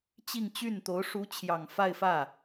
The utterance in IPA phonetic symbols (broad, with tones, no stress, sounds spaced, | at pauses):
t͡ɕ i˥˧ ŋ t͡ɕ y˥˩ n t̪ o˧˥ ʊ̯ ʂ u˧˥ t͡ɕʰ j ɑ˨˩ ŋ f a˥˧ ɪ̯ f ä˥˩